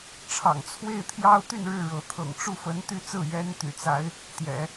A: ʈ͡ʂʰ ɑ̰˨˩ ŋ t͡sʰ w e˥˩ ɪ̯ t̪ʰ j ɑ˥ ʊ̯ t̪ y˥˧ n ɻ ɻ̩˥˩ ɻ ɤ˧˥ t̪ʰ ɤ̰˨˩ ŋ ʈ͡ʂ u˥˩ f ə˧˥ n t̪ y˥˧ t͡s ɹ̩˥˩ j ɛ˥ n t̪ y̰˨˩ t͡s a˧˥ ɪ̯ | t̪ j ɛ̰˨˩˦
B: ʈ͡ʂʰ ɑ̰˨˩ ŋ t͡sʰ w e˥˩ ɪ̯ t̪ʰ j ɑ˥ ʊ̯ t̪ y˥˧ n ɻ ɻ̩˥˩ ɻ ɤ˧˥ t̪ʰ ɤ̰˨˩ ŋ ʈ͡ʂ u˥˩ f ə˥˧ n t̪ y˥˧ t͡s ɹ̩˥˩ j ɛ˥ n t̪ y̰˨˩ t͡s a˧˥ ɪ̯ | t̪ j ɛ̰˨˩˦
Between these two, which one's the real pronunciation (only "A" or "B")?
A